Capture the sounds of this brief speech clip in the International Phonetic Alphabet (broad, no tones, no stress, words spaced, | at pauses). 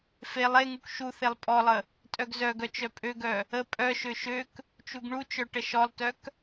felˠ eŋuk ʃu θelˠpʼɔlˠə | tʼœɡzœɡœ t͡ʃœpʼøɡœ | ə pʼœʃø ʃøk | t͡ʃuɡɳut͡ʃœ ʈəʃɔlˠtœk